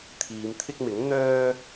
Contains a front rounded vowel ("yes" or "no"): yes